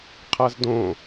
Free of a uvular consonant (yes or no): no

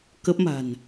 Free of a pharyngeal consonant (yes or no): yes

